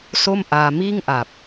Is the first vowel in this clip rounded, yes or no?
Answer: yes